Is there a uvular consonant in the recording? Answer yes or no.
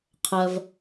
yes